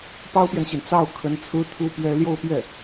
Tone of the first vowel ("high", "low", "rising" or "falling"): high